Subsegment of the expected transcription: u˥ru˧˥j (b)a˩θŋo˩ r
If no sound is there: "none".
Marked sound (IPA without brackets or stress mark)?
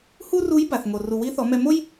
b